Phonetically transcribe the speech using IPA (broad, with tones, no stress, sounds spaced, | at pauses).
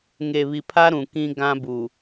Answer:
ŋ e˨ β i˨ pʰ a˦ ɾ ũ˨ k ĩ˦ ɡ ã˦ b u˨